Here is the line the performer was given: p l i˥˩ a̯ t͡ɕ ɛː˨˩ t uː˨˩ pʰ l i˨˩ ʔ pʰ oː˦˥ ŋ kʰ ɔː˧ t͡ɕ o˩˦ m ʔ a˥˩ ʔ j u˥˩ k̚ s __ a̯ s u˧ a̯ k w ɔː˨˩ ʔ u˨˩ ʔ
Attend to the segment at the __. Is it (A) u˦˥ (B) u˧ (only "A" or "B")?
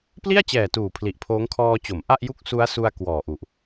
A